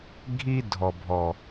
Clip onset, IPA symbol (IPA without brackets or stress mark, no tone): ɡʱ